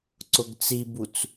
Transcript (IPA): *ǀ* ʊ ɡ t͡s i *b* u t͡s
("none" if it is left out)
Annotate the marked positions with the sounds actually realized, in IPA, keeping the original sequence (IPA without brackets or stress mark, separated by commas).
ǀ, b